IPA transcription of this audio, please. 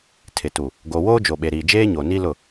tʰ ɪ˨ t u˨ | ɡ o˨ w oː˦ d͡ʒ o˨ ɓ e˨ ɾ iː˨ d͡ʒ eː˦ ɲ o˨ n i˦ l ʊ˦˨

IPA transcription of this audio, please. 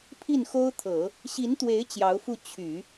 pʰ i˥˩ n x o˥ ʊ̯ t̪ʰ ɤ˨˩˦ | ɕ i˧˥ n t̪ w e˧˥ ɪ̯ t͡ɕ j ɑ˧˥ ʊ̯ f u˥˩ t͡ɕʰ y˨˩˦

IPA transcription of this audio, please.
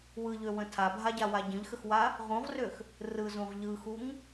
w ɯ ʎ ø w ə̃ tʰ a bʱ a ɟ a w a ɟ ə̃ ʎ x ə x w a | ʁ ũ ʁ r ø x | r ɯ z ũ ʁ ʎ ɯ x u ŋ

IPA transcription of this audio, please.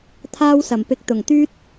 t̪ʰ aː˥ w s ɐ˨˩ m p ɪ˧ k̚ t̪ ʊ˨˩ ŋ t̪ yː˥ t̚

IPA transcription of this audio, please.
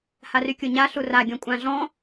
h a r y kʲ o ɲ a ɬ u r a ɡʲ ɔ̃ kʷʼ ã ɮ ɔ̃

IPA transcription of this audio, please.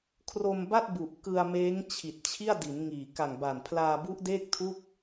kʰ r o˧ m b a˥˩ t̚ b u˨˩ ʔ k ɯ˧ a̯ m eː˦˥ ŋ t͡ɕʰ i˨˩ t̚ t͡ɕʰ i˥˩ a̯ d i˩˦ n ŋ iː˨˩ k a˨˩ ŋ b a˨˩ n pʰ l aː˧ b u˦˥ ʔ d eː˥˩ k̚ tʰ u˥˩ k̚

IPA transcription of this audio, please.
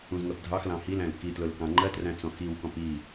ũ z ŋ ɜ p dʱ ɑ x l ɑ̃ h i l æ̃ l k i t l ʊ l k ɑ̃ ŋ͡ǃ ɜ t r æ̃ t͡s ɔ̃ x i w k ɔ̃ p i

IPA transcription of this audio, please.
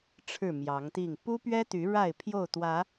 ʈ͡ʂʰ ɻ̩˥˨ m j ɑ˨˦ ŋ t̪ i˥˨ ŋ p u˦ p ɥ ɛ˦ t̪ y˨˦ ɻ a˥˨ ɪ̯ pʰ j o˥˨ ʊ̯ t̪ w ä˨˦

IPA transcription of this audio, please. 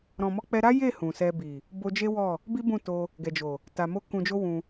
ɾ ɔ̃˨ m ɔ˧ k͡p ɛ˧ ɾ a˦ j e˦˨ h ũ˨ s ɛ˧ b i˨ | b o˧ d͡ʒ e˦ w ɔ˦˨ | b i˦ b ũ˦˨ t o˧ | ɡ ɛ˨ d͡ʒ o˨ | t a˧ m o˦ k ũ˧ d͡ʒ o˦ w ũ˧

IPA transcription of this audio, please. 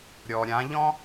ɾʲ ɔ˩ ɾʲ ã˩˧ ʎ ɔ̃˥

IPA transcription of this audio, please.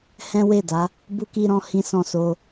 h ɛ̃˦ w e˦˨ d a˨˦ | b u˧ k i˧ ɾ ɔ̃˧ h ĩ˦ s ɔ̃˦˨ s o˧

